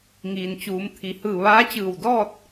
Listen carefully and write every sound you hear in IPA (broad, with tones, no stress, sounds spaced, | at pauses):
ŋ iː˩ n t͡ɕ uː˩˧ m t̪ʰ i˩˧ h ɯː˧˩ ʋ aː˧˥ t͡ɕ ɯː˧˩ w d ɔː˥˨ t̚